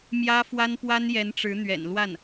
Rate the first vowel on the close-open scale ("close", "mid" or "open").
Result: open